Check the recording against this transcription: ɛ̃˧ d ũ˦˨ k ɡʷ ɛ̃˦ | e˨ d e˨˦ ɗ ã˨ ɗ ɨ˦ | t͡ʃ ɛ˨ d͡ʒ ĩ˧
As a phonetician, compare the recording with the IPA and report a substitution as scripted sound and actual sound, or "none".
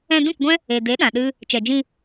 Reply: none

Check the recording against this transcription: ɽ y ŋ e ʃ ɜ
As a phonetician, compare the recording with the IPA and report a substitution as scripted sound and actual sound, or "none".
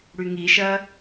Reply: e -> i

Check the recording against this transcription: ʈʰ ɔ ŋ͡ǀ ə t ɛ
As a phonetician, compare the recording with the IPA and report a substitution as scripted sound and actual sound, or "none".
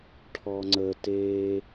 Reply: ɛ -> e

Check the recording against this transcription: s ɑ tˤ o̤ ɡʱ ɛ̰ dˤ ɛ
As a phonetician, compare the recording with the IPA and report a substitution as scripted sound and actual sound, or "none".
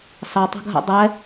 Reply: none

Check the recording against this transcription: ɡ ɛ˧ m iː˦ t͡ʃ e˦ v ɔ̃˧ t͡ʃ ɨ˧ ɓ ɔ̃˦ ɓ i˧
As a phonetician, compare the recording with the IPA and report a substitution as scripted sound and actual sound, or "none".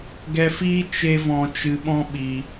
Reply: m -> f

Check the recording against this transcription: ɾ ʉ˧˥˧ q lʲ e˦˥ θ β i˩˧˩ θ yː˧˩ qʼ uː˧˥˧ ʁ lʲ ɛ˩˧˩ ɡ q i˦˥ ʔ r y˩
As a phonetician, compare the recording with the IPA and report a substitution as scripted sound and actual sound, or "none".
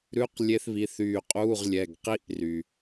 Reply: none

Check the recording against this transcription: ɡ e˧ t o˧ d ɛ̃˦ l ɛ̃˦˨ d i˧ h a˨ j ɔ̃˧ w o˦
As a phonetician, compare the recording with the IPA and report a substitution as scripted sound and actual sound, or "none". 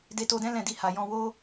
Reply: ɡ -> d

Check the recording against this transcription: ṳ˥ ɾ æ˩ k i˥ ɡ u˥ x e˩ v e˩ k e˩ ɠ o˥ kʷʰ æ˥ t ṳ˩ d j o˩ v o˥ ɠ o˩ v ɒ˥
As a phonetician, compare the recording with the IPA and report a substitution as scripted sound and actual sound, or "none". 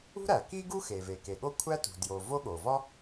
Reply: none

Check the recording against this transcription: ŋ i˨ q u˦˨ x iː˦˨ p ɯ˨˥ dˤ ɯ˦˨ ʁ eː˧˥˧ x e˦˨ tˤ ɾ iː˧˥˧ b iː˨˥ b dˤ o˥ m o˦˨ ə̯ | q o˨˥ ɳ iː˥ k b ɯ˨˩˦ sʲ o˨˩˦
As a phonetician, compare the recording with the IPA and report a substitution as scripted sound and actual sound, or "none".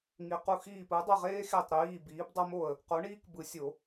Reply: eː˧˥˧ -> eː˥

